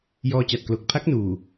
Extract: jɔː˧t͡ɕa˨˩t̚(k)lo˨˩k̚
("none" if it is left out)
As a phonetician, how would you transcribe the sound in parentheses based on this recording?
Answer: k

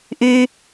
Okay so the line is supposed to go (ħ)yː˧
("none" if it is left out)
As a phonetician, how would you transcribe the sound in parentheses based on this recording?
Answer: ʔ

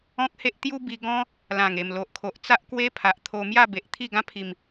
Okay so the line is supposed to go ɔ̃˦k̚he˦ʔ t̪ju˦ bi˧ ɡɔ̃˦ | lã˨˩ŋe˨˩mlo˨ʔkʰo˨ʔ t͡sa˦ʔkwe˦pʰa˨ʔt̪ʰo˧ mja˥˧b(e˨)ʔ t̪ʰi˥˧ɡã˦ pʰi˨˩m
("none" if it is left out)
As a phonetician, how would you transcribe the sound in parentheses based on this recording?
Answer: e˨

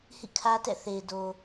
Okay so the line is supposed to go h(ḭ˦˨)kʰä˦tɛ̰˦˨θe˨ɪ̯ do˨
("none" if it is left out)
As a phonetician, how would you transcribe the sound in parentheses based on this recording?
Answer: ḭ˦˨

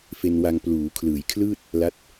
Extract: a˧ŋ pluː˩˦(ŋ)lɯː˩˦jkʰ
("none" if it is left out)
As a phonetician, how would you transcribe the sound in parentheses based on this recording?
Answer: kʰ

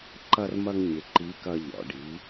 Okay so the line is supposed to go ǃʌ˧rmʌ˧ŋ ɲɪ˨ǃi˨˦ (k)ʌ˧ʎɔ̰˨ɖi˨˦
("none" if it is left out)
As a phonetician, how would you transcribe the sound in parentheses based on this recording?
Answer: k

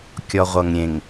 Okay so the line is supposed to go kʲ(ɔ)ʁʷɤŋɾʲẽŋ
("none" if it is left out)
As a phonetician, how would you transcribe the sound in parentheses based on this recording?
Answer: ɔ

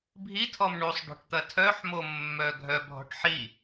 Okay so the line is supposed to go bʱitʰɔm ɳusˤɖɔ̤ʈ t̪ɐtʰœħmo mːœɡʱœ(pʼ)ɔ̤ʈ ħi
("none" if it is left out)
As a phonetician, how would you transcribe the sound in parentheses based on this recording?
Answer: bʱ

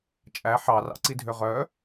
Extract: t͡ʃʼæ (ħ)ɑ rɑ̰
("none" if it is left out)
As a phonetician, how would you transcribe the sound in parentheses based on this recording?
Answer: ħ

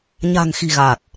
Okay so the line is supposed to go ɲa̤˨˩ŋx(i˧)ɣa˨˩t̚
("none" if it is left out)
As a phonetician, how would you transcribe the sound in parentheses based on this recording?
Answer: i̤˨˩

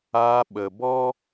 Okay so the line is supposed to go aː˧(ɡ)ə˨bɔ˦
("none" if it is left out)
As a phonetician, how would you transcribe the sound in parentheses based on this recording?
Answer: ɓ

